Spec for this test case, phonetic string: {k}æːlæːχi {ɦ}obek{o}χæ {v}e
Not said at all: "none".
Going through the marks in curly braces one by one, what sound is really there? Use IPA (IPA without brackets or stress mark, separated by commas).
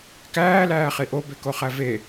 k, ʔ, o, v